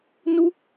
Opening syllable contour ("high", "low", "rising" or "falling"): high